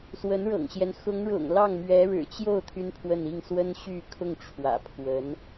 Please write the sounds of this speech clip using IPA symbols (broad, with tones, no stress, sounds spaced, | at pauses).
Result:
s w ə˧˥ n ɻ ɤ̰˨˩ ŋ ɕ j ɛ˦ n x ʊ˧˥ ŋ ɻ ʊ̰˨˩ ŋ l ɑ˥˩ ŋ m ɥ ɛ˧˥ ɻ ɻ̩˨˩ t͡ɕ j o˥˩ ʊ̯ t̪ʰ y˥ n pʰ w ə˥˧ n i˥˩ ŋ s w ə˥ n ɕ y˥˧ kʰ ʊ˥˩ ŋ ʈ͡ʂʰ w ä̰˨˩ pʰ w ə˧˥ n